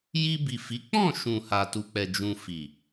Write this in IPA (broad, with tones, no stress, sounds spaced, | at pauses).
j i˧ b i˨ f i˨˦ k͡p ɔ̃˦˨ ʃ ũ˨ h a˨ t u˨ k͡p ɛ˨ d͡ʒ ũ˧ f i˨